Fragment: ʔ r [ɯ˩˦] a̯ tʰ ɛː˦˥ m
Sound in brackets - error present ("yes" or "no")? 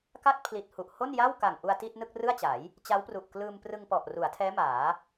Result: yes